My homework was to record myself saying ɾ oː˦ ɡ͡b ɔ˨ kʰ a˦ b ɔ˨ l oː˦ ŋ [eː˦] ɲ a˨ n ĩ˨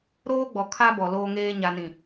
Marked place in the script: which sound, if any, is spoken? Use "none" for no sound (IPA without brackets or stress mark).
eː˦